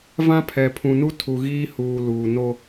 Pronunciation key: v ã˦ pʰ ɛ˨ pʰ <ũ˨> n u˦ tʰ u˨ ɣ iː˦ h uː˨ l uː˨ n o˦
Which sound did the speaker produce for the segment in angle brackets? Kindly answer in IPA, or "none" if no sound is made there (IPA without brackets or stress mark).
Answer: ũ˨